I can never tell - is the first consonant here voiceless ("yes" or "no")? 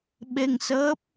no